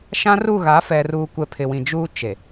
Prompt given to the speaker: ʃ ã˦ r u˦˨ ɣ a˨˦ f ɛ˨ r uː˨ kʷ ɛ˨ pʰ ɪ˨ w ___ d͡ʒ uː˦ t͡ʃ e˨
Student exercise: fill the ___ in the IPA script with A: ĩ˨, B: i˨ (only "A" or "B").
A